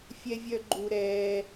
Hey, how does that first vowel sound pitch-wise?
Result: high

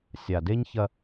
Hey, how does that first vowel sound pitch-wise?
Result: low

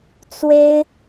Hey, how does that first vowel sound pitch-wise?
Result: high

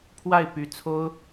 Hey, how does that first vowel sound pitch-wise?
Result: falling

